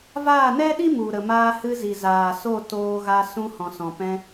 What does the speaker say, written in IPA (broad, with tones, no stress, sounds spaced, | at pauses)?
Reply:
v aː˦˨ n ɛ˦ ɗ i˦ m u˨ ɾ ə˨ m aː˧ h ɨ˧ z i˨ z aː˨ s o˦˨ t oː˧ ɣ a˧ s ũ˧ h ɔ̃˨ s ɔ̃˨ p ɛ̃˧